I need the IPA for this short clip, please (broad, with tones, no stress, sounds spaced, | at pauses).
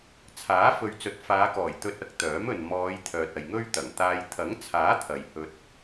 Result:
t͡sʰ aː˨˥ f ɵ˨ ɥ t͡s ɵ˨˥ t̚ f aː˨˧ k ɔː˨˩ j t̪ ɵ˧ t̚ ɐ˨˥ k̚ t̪ œː˨˥ m ɵ˨ n m ɔː˨˧ j t̪ʰ œː˨ t̚ ɐ˨ j ŋ ɵ˥ ɥ t̪ ɐ˨˩ ŋ t̪ aː˧ j t̪ʰ ɐ˨˥ ŋ t͡sʰ aː˨˥ t̪ʰ ɐ˨ j h ɵ˧ t̚